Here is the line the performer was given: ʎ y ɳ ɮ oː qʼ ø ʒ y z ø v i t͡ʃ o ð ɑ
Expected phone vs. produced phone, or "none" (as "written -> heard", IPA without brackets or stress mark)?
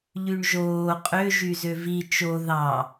ɮ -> ʒ